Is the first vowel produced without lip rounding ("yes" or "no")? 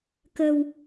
yes